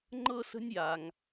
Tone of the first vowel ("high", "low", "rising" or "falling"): high